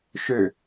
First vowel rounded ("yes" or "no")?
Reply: yes